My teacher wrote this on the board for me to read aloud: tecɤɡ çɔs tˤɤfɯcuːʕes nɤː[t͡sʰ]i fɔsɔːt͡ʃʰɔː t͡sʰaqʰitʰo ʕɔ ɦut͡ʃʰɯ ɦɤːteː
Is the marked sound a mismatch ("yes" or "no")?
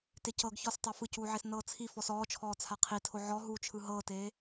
no